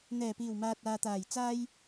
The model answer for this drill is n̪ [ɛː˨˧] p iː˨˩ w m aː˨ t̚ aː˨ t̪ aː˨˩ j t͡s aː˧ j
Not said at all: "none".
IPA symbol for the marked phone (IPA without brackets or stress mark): ɛː˨˩